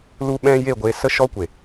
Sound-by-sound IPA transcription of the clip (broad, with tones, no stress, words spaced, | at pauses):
lu˦ɓɛ̃˦ je˦˨ɡʷe˧ sə˦ʃɔ˦kʷe˨